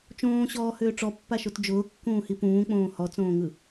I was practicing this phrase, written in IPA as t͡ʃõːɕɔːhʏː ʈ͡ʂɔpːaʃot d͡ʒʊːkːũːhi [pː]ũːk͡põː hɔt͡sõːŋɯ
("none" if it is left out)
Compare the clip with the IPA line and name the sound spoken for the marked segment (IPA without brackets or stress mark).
p